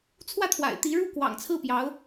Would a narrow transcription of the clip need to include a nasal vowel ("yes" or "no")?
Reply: no